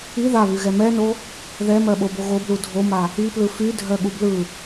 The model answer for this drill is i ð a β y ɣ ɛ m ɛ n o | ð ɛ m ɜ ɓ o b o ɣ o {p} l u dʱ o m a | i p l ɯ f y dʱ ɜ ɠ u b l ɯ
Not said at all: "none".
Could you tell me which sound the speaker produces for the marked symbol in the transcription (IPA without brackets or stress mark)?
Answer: b